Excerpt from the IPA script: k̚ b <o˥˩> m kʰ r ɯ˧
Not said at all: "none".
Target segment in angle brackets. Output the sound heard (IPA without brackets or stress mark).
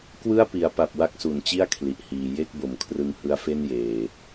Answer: o˩˦